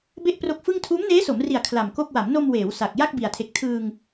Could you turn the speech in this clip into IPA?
b e˥˩ ʔ p r o˦˥ k̚ f ɯ˥˩ ŋ tʰ uː˦˥ m n eː˦˥ s o˩˦ m r i˨˩ a̯ kʰ l a˨˩ m k o˥˩ k̚ w a˩˦ m n o˧ m w eː˩˦ w s a˨˩ k̚ j a˥˩ k̚ b i˨˩ a̯ tʰ e˨˩ k̚ tʰ ɯː˧ ŋ

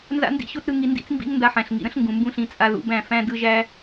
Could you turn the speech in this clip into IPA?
n z a̰˦ n d ḭ˦ ɕ o˦ t ɾ ɯ˦ ŋ i˧ n d ḭ˦ t͡s m b ḭ˦ ŋ n d a˧ ħ æ̃˨ ɬ ŋ ḭ˨ ɾ ə̃˦ ɬ ŋ ɡ ũ˨ m b ũ˦˨ ɬ ĩ˨˦ t͡sʼ a˧ ð ṵ˧ b æ̃˦˨ f æ̃˦ d ɯ˦ ʒ æ˦

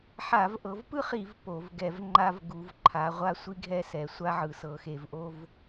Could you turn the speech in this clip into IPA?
ħ a˧˩˧ v ʔ ɤ˨˦ v p ɯ˥ χ i˧˩˧ v p o˧˩˧ v ɡ ɛ˧˩˧ v ŋ͡ǃ a˥ v ɡ u˨˦ v ǃʰ a˨˦ ʁʷ a˥ sʷ i˥ ɡʱ ɛ˥ s ɛ˨˦ sʷ a˥ ʕ ɯ˧˩˧ s ɤ˨˦ x e˧˩˧ v ʔ o˥ v

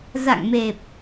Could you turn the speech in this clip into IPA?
z a̰˧˨ ŋ m e˨˩ p̚

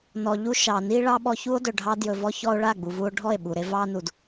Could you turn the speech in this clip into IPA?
n ɔ˨ ʎ u˧ ʃ ɑ˨ n i˦ ɭ ɑ˦ ɓ ɔ˧ ç u˦ o̯ d ɵ˨ ɖʱ ɑ˦ d j ɵ˧ v ɔ˦ ç ɔ˦ o̯ ɭ a˦˨ ɡ͡b u˨ v u˧ o̯ ɖʱ ɔ˦˨ e̯ ɓ u˨ ɾ e˧ v ɑ˦ n u˨ d

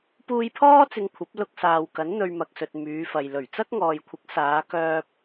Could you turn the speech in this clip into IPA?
p uː˧ j pʰ ɔː˥ t͡s ɪ˧ ŋ kʷʰ ɐ˨˥ p̚ l ʊ˥ k̚ s aː˧ w k ɐ˨˥ n n̪ ɵ˧ ɥ m ɐ˨ k̚ s ɵ˨ t̚ m yː˨˧ f ɐ˨ j l ɵ˨˩ ɥ t͡s ɐ˥ k̚ ŋ ɔː˨ j kʷʰ ɪ˨˥ k̚ s aː˨˧ k œː˧ p̚

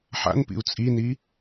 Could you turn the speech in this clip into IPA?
ħ a̰ n p ḭ u̯ t͡sʼ i n i

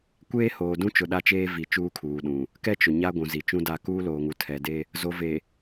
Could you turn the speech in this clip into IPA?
kʷ eː˦ h oː˨ d ũ˦ t͡ʃ ʊ˨ ɗ a˦ t͡ʃ eː˦ v i˨ t͡ʃ uː˦ kʰ uː˨ ɗ ũ˨ | k ɛ˦ t͡ʃ ʊ˨ ɲ a˦ ɡʷ ũ˨ z i˨ t͡ʃ ũ˦ d a˦˨ k uː˦ l oː˨ ŋ u˨ tʰ ɛ˨ d e˦ | z o˨ v e˨

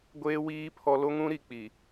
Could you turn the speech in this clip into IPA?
ɡʷ eː˦ w iː˦ pʰ ɔ˦ l o˦ ŋ ũ˦ ɾ i˨ k͡p i˨

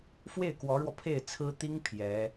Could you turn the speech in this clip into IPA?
f w e˥˩ ɪ̯ k w ɔ˧˥ ɻ w ɔ˧ pʰ e˥˩ ɪ̯ t͡sʰ ɹ̩˥ t̪ i˥ ŋ pʰ j ɛ˧˥

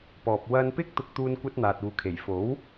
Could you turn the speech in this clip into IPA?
p ɔː˨ p̚ w ɐ˧ n p ɪ˥ k̚ t̪ ʊ˧ k̚ t̪ uː˧ n kʷ ɐ˥ t̚ n̪ aː˨ t̚ uː˨ kʰ e˨˩ j f o˨˥ w

